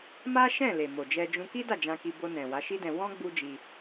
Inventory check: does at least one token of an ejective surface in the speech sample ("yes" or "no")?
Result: no